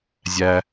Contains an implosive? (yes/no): no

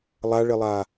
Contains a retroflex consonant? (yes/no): yes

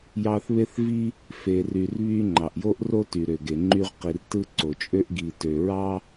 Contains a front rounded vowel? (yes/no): yes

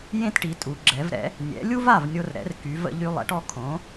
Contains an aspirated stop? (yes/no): yes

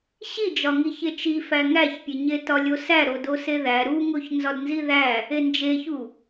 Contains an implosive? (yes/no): no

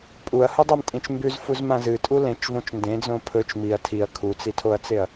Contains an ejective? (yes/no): yes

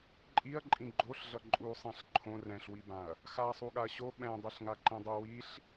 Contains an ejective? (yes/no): yes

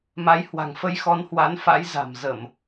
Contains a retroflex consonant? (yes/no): no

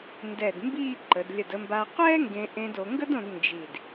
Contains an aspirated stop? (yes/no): no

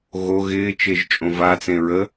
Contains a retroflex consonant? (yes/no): no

